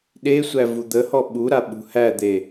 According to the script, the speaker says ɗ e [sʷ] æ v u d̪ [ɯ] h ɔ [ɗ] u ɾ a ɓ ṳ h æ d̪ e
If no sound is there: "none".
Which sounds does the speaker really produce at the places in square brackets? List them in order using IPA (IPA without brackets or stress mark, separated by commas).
sʷ, ə, ɓ